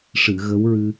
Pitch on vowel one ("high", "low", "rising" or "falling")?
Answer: low